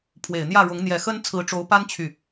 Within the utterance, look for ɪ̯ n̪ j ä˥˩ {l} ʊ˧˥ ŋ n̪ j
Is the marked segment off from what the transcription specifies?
yes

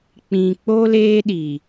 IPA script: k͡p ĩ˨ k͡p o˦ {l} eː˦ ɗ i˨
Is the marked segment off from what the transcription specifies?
no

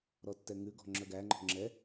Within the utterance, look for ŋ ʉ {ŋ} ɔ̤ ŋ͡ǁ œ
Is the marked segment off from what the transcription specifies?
yes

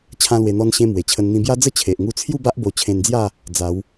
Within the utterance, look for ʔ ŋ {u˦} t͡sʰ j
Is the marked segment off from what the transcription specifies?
yes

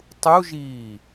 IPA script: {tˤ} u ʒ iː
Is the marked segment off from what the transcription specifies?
no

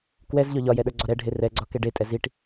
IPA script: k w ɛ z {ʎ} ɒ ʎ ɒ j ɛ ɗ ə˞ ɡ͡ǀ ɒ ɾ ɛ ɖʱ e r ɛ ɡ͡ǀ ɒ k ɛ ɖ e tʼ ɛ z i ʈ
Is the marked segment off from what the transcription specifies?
no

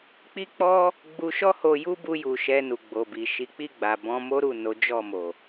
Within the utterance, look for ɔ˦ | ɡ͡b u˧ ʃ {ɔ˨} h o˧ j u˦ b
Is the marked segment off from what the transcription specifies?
yes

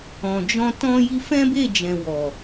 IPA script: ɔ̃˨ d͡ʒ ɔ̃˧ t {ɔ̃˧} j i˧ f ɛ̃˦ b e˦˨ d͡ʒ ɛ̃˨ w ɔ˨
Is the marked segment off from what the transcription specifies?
no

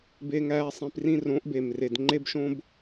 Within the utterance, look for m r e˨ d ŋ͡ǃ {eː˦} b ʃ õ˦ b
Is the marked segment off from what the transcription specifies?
yes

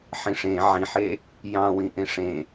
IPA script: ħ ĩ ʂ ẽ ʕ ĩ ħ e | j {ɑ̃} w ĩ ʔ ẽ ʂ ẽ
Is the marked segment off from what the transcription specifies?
no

